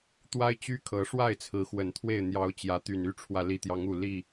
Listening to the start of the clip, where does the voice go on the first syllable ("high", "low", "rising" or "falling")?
high